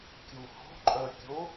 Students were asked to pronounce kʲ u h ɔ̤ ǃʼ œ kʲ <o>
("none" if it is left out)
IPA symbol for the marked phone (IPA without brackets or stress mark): o